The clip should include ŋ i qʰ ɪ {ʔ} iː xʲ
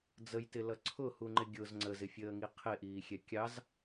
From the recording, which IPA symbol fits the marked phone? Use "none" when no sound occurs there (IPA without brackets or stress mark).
ʔ